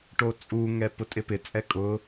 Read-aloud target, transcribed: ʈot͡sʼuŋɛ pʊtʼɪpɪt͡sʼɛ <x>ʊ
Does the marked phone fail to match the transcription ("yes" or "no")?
yes